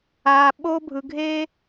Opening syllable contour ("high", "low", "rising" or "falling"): low